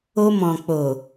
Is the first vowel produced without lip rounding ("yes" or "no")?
no